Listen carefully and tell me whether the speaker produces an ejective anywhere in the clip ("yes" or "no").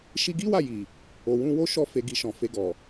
no